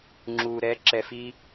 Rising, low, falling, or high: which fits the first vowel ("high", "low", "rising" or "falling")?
low